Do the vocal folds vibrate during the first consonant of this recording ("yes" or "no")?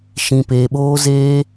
no